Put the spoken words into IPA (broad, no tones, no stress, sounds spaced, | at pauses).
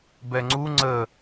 b ɛ ŋ͡ǀ u ŋ͡ǀ ə